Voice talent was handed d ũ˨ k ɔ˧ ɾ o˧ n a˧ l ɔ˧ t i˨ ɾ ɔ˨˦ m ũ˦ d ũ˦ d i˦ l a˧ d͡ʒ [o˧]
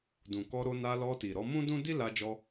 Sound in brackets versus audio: incorrect: ɔ˧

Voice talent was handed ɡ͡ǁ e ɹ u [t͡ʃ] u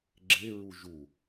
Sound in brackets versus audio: incorrect: ʒ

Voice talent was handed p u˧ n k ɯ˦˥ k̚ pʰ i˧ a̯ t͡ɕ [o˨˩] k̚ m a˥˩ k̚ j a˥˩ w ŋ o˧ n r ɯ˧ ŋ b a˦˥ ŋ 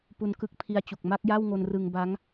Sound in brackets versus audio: incorrect: u˨˩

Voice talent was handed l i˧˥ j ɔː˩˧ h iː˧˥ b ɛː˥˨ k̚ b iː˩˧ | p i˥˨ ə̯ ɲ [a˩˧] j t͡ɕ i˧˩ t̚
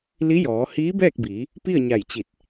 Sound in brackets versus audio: incorrect: a˧˩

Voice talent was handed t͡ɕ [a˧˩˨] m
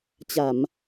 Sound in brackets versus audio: correct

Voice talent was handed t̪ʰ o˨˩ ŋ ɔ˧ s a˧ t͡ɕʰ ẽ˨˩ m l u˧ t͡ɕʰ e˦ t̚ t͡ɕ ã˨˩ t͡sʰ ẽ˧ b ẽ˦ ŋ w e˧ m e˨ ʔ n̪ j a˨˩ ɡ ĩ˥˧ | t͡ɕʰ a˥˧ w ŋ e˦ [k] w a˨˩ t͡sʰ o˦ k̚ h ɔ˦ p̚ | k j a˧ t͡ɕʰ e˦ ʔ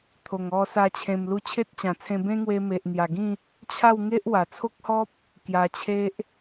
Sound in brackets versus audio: incorrect: ʔ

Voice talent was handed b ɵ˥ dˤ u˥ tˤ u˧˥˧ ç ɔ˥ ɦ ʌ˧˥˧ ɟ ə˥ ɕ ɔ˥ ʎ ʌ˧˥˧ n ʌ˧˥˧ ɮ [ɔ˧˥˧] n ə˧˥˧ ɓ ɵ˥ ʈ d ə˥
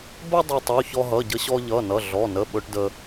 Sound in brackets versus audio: correct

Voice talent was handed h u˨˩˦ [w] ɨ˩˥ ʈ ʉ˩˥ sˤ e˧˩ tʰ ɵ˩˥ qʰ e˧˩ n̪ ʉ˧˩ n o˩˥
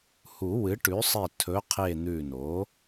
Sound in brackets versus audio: correct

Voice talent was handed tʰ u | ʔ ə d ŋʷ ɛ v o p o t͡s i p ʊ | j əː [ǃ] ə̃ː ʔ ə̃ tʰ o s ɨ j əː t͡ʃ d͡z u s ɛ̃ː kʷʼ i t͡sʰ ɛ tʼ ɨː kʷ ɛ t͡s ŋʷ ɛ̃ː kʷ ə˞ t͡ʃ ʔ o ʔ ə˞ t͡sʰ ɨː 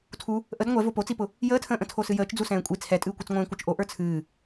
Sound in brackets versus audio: incorrect: tʰ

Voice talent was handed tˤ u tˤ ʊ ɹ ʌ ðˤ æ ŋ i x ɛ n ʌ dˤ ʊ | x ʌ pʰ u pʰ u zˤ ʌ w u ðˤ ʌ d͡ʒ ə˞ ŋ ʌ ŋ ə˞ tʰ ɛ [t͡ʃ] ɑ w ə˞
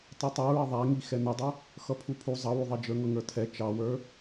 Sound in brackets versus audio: correct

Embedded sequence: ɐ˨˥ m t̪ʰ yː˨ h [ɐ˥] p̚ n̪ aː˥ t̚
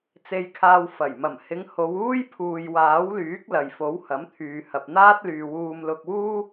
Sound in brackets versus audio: incorrect: ɐ˨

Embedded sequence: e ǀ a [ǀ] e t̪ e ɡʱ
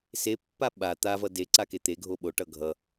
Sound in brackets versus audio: incorrect: k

